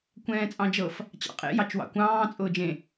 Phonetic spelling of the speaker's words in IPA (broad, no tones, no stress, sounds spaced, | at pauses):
kʷ ɛ̃ː t͡sʼ ɑ̃ d͡ʒ ɤ f | t͡ɕ ɑ̰ qʼ ḛ j ɑ t͡ʃ w ɑ̰ kʷ ɑ̃ː t͡sʼ ʊː d͡ʒ ẽ